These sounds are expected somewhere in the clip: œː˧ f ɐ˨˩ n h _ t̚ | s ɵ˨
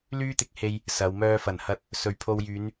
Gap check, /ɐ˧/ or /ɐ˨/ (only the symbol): ɐ˧